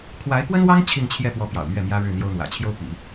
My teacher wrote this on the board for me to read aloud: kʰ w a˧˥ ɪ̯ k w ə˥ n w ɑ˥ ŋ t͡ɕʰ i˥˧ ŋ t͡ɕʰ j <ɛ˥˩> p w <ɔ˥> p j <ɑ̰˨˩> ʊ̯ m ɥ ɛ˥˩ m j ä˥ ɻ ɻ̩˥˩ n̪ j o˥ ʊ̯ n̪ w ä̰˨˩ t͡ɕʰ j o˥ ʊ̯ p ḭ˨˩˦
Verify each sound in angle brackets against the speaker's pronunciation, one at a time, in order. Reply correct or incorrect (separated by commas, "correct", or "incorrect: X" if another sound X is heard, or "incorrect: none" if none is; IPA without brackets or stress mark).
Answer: correct, incorrect: ɔ˧˥, correct